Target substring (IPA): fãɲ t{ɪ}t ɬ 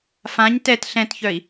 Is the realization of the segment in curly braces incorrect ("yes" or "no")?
yes